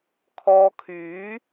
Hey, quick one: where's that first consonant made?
velum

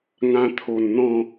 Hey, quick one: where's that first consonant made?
velum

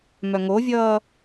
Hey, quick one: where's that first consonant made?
lips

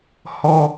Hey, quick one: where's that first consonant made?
throat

